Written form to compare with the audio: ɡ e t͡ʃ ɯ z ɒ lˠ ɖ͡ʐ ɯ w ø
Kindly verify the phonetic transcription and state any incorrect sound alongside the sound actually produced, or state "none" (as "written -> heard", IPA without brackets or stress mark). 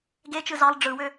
ɒ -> ɑ